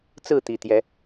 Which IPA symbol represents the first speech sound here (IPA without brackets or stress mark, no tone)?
t͡s